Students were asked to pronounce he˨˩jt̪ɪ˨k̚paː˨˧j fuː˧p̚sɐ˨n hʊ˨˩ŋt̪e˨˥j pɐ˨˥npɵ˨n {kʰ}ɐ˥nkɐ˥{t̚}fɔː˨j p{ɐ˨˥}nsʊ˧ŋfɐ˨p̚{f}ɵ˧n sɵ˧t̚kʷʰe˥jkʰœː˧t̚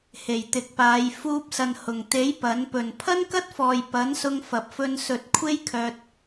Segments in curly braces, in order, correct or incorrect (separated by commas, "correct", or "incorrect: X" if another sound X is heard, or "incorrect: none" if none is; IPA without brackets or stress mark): incorrect: pʰ, correct, correct, correct